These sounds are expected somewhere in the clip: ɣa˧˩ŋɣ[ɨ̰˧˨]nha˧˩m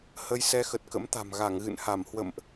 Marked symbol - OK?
yes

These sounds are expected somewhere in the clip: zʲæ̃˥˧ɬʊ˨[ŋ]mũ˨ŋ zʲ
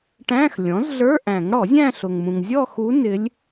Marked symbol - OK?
yes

